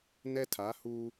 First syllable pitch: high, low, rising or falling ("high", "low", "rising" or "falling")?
high